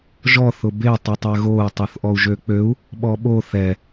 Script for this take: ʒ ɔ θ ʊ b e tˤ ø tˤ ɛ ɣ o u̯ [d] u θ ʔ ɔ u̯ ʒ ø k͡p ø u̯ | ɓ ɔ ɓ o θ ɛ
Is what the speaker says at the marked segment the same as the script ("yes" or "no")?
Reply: no